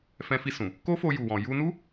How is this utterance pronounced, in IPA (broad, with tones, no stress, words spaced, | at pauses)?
fɛ̃˧fi˧ sũ˨ | ko˦fo˧ ju˨wɔ̃˨ ju˧nu˦